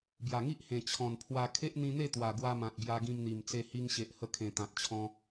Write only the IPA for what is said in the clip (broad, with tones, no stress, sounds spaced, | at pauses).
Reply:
b j a˨˩ ŋ i˦ ʔ h ẽ˨˩ t͡ɕʰ ɔ̃˨˩ n pʰ w a˧ kʰ e˦ ʔ n̪ ĩ˧ n̪ e˥˧ t̪ w a˨˩ ɡ w a˧ m ã˨ t̚ b j a˧ ɡ ĩ˧ m n̪ i˨˩ m t͡s e˧ h i˧ ŋ ɕ e˨ ʔ h ə˧ kʰ ẽ˨˩ t̪ ã˨ t̚ t͡ɕʰ ɔ̃˧